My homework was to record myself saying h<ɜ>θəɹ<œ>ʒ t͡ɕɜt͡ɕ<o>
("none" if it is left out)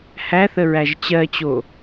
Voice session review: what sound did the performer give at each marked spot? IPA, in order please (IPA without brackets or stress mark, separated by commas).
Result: æ, æ, o